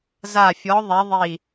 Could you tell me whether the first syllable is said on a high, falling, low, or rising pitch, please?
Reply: falling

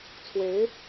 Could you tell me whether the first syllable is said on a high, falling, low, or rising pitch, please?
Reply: rising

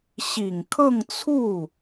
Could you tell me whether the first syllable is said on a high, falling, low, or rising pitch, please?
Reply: low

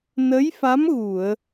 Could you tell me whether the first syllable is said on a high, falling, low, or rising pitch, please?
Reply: rising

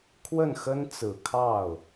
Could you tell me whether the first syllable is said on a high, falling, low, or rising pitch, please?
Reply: falling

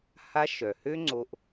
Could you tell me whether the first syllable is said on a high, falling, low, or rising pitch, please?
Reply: high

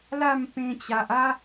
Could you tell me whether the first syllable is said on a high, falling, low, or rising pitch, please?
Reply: falling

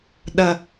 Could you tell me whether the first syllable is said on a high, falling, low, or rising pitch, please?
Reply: low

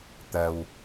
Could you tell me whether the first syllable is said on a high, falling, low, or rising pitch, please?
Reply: low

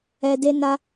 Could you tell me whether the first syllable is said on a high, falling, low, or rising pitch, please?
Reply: low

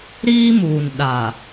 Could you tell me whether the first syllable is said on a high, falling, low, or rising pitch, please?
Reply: high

